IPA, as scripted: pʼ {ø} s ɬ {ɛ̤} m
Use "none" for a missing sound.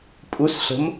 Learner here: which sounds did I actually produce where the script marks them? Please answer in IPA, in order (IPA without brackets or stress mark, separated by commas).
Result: u, ə̤